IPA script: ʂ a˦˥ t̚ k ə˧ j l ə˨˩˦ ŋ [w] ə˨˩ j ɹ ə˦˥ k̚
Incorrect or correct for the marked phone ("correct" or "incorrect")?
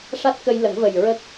incorrect